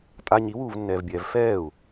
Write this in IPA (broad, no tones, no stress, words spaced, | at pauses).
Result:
tʼa ɲiwuːvnːɛːvbʲɛːv fɛːu̯